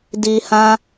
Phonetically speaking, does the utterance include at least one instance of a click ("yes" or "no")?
no